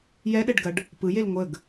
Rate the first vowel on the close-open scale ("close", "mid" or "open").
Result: mid